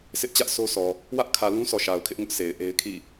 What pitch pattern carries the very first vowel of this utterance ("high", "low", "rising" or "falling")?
high